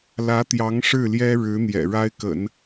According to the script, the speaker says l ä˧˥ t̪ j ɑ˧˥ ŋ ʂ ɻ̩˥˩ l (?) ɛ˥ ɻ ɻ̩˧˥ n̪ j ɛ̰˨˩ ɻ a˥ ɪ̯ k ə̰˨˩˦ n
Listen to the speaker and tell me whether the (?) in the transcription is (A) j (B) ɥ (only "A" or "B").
A